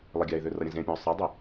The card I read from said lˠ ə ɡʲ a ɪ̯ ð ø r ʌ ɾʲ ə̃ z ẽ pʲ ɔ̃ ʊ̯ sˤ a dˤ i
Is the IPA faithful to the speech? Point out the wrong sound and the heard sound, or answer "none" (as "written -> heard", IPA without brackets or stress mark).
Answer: none